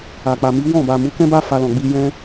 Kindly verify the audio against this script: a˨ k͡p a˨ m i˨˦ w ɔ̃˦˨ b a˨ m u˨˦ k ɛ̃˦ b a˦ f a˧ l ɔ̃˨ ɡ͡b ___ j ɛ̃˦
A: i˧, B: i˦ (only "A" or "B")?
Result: A